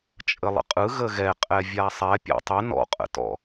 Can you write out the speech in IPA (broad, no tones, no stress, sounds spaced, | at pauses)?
t͡ʃʼ ə lˠ ə̰ qʼ ɯ ɣ ə ɣ ɛ qʼ ɛ vʲ a sˤ ɛ pʲ ɔ̰ tˤ ə n ɔ̰ qʼ ə̰ t ɔ̰